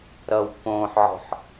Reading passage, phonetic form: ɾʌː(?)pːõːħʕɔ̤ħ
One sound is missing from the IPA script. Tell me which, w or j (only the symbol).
w